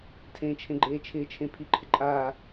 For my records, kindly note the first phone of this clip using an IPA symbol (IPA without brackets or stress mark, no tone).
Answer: tʰ